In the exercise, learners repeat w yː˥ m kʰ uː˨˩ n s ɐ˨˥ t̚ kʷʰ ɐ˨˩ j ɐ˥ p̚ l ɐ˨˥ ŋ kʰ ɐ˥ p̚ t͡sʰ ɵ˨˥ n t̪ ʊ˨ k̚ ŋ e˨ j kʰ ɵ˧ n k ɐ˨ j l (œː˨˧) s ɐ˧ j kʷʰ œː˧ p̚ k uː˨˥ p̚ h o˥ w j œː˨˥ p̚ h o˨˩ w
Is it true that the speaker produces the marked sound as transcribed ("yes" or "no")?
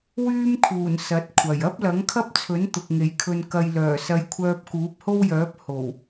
no